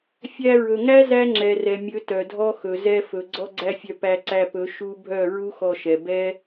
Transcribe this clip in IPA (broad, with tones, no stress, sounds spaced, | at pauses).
fʲ æ˧ ɹ ɵ˨ ŋ æ˦ z æ˦ ŋ͡ǁ ɛ˨ r ɛ˨ mʲ ɵ˨˦ t œ˨ dʱ ɔ˦ x ɵ˨ z ɛ˧ f ɵ˨ ɡ͡ǀ ɔ˦ ɡ͡ǀ æ˦ fʲ œ˧ p æ˧ ǀ æ˧ p ɵ˨˦ ʃ u˦ bʱ œ˦˨ ɹ u˦ x ɔ˧ ʃ ɛ˨ b ɛ˦